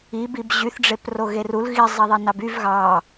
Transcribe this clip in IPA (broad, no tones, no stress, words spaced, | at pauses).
ibib ʑyθɖ͡ʐep roɣerul ɣizˤiðˤinɑb yv ɣɑ